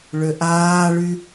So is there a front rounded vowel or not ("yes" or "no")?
yes